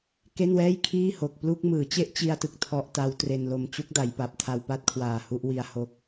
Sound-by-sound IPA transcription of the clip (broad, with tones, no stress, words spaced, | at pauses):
ke˥˩nwɛː˥˩j kʰiː˥˩ho˨˩k̚ plu˥˩k̚ mɯː˩˦t͡ɕe˥˩ʔt͡ɕi˧a̯tɯ˨˩k̚ tʰɔ˦˥ʔta˦˥w tre˧nlo˧m t͡ɕu˦˥k̚da˩˦jpa˨˩p̚tʰa˧w pa˥˩t̚kʰwaː˨˩ hu˥˩ʔwi˧a̯ho˦˥k̚